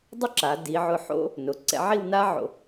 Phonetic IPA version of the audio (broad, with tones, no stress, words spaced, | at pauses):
dˤʊ˥ǁa˩˧ di˩˧ʕʊ˧˩ħo̰˥ | nʊ˩˧ ǀɛ̰˧ʕi˥˧wna˥ʕo̰˧˩